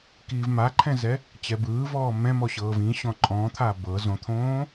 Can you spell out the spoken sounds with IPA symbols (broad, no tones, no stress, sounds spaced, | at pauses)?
k iː v m a ǃʰ ɛ̃ z ɛ | t͡ɕ ɛ b ɯː v ɔː m ɛ̃ m ɔ ɕ ɤː v ĩ ɕ ɔ̃ ǃʼ ɔ̃ t̪ʰ a b ɤ z õ t̪ʰ õː